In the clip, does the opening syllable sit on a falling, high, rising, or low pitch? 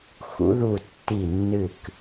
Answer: rising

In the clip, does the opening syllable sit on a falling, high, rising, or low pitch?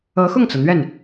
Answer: rising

